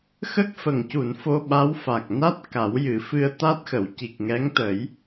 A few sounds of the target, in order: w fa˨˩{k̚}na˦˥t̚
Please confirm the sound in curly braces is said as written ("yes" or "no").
yes